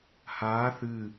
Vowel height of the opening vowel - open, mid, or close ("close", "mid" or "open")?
open